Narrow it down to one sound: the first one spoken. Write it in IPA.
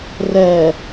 r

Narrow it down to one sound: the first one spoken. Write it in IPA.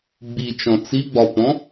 ɡ͡b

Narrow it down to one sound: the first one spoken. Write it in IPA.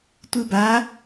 tʷ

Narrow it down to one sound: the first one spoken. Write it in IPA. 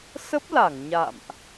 s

